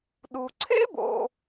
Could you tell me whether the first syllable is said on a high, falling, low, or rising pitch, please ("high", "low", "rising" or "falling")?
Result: low